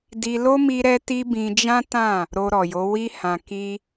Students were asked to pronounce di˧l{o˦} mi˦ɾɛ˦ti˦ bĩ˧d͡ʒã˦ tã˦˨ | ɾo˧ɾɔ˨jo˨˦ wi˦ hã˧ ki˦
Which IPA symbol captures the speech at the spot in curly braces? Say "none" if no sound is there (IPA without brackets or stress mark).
o˦